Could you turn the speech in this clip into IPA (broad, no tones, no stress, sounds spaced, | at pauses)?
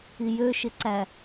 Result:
i j ø ʃ ɪ ǀ æ